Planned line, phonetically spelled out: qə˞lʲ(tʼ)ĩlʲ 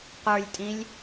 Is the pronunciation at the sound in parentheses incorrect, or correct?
correct